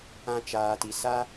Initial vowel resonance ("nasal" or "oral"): nasal